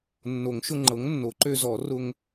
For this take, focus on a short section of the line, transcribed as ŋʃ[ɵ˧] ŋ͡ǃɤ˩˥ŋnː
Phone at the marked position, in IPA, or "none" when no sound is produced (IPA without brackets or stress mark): ʊ˧